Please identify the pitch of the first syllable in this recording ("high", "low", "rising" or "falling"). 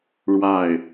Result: falling